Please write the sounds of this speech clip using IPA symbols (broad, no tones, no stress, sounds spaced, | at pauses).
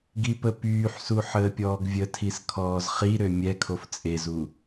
ɡ i p ə p yː ħ s u ħ əː pʲ ɔː ɡ vʲ ə tʰ i s kʰ ɔː z χ i ɾ ø mʲ ɛ kʰ o f t͡sʼ e z u